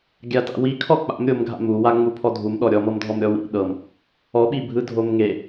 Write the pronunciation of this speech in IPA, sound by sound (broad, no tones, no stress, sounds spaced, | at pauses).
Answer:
ɡʲ a t a̰ w i kʰ ɔ k͡p a̰ m ɾʲ o m ɡʱ a̰ m u w a ŋ͡m u pʰ ɔ dʱ u m ɗ ɔ ɾʲ ɔ m ɤ m dʱ ɔ m ɾʲ ɔ w ḭ ɗ ɤ m | ɔ ɓ i bʱ ɯ dʱ o m ŋ e